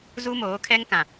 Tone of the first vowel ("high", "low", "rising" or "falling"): high